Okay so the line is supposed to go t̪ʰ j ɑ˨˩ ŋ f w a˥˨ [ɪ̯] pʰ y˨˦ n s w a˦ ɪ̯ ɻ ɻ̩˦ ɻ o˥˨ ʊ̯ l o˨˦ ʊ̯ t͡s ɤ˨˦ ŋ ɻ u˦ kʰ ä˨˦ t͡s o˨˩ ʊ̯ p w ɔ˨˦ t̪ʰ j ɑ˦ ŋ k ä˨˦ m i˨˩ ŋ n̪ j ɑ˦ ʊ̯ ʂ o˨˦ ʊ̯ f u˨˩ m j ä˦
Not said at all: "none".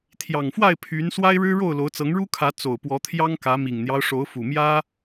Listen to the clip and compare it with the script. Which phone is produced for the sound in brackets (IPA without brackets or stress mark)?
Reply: ɪ̯